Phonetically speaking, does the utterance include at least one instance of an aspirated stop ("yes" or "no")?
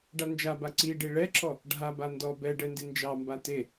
no